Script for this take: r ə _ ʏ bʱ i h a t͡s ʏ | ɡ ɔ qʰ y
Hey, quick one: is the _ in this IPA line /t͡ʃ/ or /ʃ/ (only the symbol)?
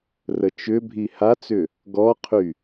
t͡ʃ